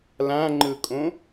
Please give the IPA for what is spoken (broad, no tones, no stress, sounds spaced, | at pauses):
l ã ŋ͡ǃ ɯ kʼ õ